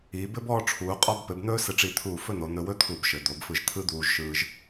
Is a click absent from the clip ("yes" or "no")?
yes